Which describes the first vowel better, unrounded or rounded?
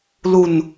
rounded